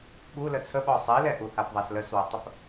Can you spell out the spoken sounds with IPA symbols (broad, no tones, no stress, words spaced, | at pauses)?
ɓu lət͡sʰəɓɔ sˤilɛʔuhap ðˤasləswɐtˤəp